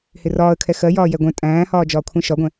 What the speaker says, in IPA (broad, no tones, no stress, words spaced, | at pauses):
hɪrɒːə̯kʰɛ xɜjɒː jɛɡʷɛ̃ tʼæ̃ːhɒː d͡ʒɒːkʷʰɛ̃ʃɒɡʷɛ̃